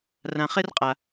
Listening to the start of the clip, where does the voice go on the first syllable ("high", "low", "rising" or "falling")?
low